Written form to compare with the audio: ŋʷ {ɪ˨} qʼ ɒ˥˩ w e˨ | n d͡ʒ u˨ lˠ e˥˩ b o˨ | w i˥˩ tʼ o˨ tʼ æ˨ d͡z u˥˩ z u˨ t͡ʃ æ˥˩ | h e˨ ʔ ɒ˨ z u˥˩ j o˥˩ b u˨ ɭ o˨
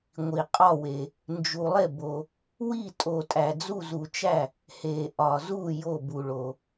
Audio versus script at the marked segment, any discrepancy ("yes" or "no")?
yes